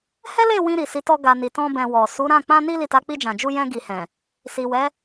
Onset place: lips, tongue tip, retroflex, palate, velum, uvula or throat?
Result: throat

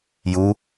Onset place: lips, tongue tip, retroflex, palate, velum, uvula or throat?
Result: palate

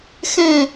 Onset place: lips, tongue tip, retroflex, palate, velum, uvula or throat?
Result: velum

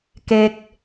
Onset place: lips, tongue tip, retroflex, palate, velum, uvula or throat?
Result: velum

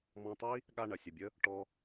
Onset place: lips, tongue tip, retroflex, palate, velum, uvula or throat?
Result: lips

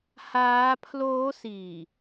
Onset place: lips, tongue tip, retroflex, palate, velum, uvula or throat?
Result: throat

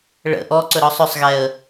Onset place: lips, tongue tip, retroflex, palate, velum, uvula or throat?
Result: retroflex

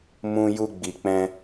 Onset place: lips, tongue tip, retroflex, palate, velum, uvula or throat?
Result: lips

